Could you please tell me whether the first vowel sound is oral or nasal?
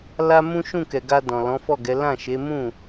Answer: oral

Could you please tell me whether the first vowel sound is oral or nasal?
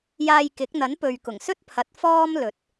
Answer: oral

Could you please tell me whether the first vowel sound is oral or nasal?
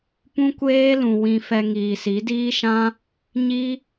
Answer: nasal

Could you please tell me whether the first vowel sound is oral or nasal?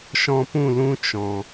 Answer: nasal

